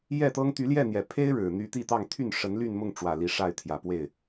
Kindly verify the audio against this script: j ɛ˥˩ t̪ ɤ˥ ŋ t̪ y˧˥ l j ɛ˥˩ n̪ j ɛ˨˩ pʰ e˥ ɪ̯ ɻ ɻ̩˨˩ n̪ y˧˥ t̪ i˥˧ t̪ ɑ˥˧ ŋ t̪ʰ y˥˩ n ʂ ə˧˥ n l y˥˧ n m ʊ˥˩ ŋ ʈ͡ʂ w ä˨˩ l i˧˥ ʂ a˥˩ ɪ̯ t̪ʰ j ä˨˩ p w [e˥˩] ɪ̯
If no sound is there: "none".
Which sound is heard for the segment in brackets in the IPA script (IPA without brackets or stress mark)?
e˥˩